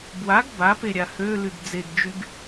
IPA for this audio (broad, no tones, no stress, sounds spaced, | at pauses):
b w a ɡ b a p e ɾʲ a h ø l y ɡ d͡z e ɡ d͡ʒ y ɡ